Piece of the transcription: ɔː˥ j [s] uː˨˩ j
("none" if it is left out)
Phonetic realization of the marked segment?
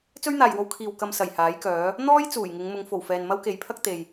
t͡s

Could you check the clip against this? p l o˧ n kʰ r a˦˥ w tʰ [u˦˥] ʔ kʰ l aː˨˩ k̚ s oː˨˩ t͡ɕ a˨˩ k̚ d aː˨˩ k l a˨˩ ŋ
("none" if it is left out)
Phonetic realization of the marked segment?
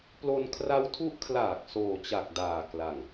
u˦˥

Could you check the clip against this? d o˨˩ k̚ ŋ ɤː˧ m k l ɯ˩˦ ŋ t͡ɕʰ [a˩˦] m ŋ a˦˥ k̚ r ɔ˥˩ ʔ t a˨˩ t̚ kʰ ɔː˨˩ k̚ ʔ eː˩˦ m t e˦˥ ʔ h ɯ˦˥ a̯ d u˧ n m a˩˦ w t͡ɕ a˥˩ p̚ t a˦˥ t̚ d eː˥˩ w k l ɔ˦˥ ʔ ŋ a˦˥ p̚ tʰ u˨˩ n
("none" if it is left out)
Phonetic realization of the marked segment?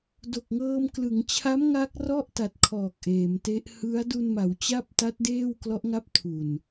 a˦˥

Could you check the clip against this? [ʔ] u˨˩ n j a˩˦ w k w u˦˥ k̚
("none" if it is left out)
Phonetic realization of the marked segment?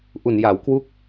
ʔ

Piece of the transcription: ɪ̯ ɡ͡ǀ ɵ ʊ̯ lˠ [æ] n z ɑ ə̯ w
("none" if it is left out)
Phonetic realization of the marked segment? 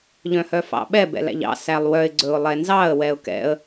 ɛ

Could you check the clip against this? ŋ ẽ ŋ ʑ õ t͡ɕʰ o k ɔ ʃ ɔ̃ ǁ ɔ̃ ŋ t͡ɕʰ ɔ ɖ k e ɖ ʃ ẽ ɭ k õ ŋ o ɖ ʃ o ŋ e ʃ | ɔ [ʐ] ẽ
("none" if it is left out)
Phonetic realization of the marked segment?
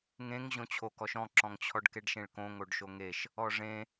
ʐ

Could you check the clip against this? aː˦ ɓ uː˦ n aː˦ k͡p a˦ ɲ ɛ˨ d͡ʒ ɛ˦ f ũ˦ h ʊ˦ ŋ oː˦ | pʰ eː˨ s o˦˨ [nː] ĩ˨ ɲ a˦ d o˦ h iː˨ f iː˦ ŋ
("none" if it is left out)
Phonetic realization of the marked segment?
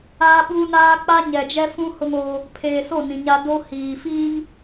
n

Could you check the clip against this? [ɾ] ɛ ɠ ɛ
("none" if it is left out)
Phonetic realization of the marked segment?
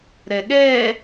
ɾ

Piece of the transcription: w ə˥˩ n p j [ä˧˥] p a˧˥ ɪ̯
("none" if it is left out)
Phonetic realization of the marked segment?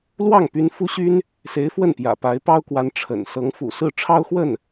ä̰˨˩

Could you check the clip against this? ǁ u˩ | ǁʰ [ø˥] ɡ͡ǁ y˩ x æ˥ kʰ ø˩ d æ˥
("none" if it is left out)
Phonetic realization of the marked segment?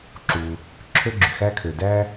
ø˥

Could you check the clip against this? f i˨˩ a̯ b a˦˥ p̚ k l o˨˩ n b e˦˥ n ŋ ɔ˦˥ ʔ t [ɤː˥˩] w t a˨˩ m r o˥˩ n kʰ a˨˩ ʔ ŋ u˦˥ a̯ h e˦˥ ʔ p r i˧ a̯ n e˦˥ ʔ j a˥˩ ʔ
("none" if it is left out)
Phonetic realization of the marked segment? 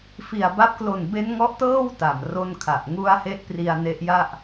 ɤː˥˩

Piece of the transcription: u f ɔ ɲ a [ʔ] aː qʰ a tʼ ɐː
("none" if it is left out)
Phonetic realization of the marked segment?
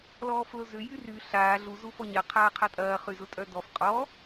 qʰ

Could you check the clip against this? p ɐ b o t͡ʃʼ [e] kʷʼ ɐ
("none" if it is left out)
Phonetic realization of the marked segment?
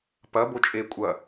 e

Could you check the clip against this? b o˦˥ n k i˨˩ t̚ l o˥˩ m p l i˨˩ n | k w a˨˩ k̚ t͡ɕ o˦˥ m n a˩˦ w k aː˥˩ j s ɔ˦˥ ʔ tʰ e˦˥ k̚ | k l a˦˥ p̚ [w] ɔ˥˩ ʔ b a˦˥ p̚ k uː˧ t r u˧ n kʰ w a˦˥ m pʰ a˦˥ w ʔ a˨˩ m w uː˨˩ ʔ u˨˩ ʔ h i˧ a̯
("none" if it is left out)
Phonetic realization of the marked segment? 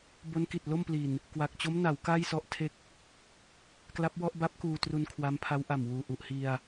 w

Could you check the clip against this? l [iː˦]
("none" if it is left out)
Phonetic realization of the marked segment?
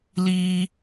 iː˦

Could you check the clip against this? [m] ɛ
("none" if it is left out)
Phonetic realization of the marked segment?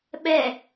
ɓ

